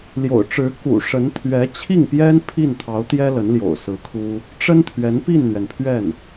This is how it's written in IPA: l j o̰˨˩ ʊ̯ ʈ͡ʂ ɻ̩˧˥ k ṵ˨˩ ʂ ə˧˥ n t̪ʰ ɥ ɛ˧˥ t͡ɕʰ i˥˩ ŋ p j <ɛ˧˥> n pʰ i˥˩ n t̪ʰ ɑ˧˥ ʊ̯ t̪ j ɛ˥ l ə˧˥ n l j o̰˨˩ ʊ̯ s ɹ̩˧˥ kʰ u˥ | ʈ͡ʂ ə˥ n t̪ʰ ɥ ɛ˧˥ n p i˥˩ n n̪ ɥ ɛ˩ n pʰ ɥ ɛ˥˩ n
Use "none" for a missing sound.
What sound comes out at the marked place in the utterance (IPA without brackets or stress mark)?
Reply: ɛ˥